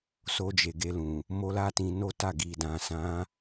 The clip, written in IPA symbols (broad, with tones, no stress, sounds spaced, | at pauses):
s o˧ d͡ʒ e˨ ɡ e˧ l ũ˨ | m o˦ l a˦ t ĩ˧ n o˦ t a˦˨ ɡ i˨ d ã˨ s ã˨˦